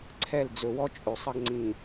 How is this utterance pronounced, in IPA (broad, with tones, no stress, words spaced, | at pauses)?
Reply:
ǀʰɛ˦˨l d͡zɵ˨wɔ˦t͡ʃʼɵ˨ sˤʌ˦ɡŋ͡ǀĩ˨